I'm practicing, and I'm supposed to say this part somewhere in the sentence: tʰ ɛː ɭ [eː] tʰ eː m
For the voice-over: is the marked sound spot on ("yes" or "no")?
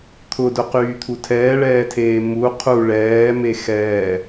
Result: no